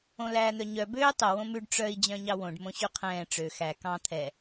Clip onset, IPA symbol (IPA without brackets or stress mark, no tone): õ